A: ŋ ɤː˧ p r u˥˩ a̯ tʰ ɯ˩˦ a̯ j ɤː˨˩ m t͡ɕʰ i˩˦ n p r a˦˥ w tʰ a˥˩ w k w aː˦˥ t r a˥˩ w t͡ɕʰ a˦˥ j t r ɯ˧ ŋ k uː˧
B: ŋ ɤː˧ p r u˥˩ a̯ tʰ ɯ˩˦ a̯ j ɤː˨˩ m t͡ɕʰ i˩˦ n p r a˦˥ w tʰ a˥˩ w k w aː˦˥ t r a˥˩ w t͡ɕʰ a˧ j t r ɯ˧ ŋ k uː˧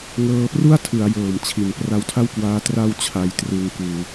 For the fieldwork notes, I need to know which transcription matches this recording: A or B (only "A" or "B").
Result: B